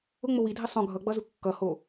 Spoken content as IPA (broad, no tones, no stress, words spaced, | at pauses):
ʊŋ͡mʊ widʱi sˤõ ɡʱʌɡ͡bʌzu kːʌho